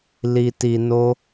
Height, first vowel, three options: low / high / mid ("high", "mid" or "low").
high